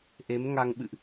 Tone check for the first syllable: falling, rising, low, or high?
rising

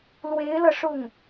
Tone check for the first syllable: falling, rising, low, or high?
rising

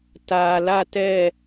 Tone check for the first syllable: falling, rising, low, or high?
low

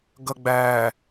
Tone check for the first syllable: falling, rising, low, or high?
low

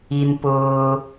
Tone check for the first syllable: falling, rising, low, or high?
low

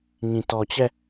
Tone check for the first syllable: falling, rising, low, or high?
low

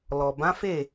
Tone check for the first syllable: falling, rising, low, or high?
low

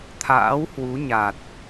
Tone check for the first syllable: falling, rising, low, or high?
rising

